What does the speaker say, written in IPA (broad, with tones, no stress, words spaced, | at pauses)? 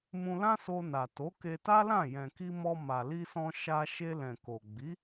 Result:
mũ˧lã˦so˧na˨ to˨˦ke˧ ta˦lã˦˨ jɛ̃˨ki˧ mɔ˧ma˨li˧sɔ̃˧ ʃa˧ ʃe˧lɛ̃˨ ko˨ ɡ͡bi˨˦